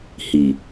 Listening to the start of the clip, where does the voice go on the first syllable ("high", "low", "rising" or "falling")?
low